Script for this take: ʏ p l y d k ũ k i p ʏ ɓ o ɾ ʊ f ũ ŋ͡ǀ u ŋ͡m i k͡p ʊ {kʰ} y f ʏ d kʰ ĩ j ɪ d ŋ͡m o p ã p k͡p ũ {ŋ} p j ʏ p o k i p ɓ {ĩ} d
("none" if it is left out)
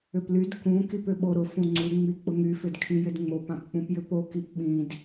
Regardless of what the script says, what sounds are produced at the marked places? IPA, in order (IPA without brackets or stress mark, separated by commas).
ŋ, none, ĩ